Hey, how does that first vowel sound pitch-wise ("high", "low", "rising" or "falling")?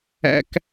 high